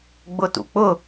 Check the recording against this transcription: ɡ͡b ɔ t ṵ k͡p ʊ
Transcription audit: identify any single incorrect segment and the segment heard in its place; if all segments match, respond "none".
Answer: ɔ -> ʊ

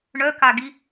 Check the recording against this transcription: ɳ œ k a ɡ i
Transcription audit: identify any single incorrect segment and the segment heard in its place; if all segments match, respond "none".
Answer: none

